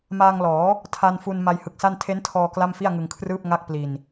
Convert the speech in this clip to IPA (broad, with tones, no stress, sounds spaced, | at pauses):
m aː˧ ŋ l ɔː˩˦ | tʰ a˧ n f u˧ n m a˧ j h ɯ˨˩ k̚ s a˥˩ n tʰ e˦˥ n tʰ ɔː˧ k l a˥˩ m f i˥˩ a̯ ŋ ɯ˧ ŋ kʰ r ɯː˥˩ p̚ ŋ a˥˩ k̚ p l i˧ n